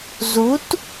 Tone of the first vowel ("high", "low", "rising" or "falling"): rising